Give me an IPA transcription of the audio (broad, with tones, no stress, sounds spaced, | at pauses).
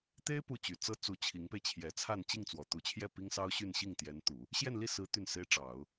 t̪ e˥ ɪ̯ p u˥˩ t͡ɕ y˨˩ t͡s ɤ˥ t͡s u˧˥ t͡ɕʰ i˧˥ ŋ p e˧ ɪ̯ t͡ɕʰ j ɛ˧˥ t͡sʰ a˥˧ n t͡ɕ i˥˩ ŋ t͡s w ɔ˨˩ t̪ u˧˥ t͡ɕʰ j ɛ˥˩ p i˥ ŋ s ɑ˥ ʊ̯ ɕ y˥˧ n ɕ i˥˩ ŋ t̪ j ɛ˧˥ n t̪ u˨˩˦ | ɕ j ɛ˥˧ n l i˥˩ s ɹ̩˧˥ t̪ y˥˩ n s e˥ ɪ̯ ʈ͡ʂ ɑ˨˩˦ ʊ̯